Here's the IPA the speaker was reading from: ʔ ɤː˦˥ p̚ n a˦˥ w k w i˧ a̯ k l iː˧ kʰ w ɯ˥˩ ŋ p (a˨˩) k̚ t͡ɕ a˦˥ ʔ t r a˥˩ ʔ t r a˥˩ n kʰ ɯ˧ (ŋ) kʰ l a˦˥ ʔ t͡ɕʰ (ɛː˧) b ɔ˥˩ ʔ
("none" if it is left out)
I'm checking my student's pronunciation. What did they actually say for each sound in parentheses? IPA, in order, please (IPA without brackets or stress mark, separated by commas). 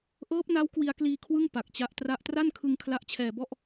a˨˩, ŋ, ɛː˧